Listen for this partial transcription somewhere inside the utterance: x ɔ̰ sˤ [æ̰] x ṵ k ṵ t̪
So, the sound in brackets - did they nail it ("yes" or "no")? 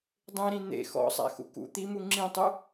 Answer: yes